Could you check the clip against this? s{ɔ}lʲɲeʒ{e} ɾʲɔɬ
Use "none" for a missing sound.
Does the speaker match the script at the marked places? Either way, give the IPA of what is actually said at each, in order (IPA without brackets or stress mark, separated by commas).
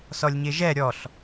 ɔ, ɛ